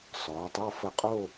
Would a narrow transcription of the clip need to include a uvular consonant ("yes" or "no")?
yes